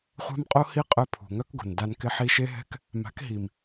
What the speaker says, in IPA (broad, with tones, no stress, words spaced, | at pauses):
χʷa̤˦mqʼo˦ hi˦qʼœ˧ pʰṳ˨ŋœ˦kɡo̤˨nda˧n kɪ˧ħi˧ʃe˦ɦɛ̤˦k | ma̤˨˦kɦi˨m